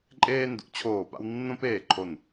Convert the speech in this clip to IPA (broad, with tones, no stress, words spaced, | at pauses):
ǃʼeː˦ndṵ˩˥t͡ɕʰoː˧˩pa̰˦w nːõ˦peː˧˩ǃʰo˧˩n